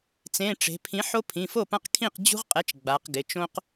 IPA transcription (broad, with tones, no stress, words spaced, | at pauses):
t͡sẽ˩˧˩ʈ͡ʂe̤˩˧pʰĩ˩˥ ħo˦pʰĩ˩˧˩fo˥˩pã˦q kʰĩ˥˩qd͡ʑṳ˦ʁqʼɛ˩˥t͡ʃ ɡ͡ba˩˧qɡɪ˩˧˩t͡ʃõ˦q